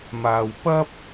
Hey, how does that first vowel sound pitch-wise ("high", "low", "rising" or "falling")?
low